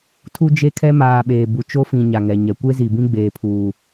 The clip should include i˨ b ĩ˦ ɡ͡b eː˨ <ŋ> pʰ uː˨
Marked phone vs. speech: incorrect: none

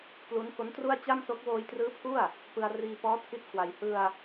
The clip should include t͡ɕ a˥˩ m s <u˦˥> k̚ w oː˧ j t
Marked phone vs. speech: incorrect: o˦˥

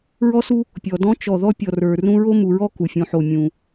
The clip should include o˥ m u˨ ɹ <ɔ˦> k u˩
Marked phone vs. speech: incorrect: ɔ˥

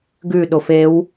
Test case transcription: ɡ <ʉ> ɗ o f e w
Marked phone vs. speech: correct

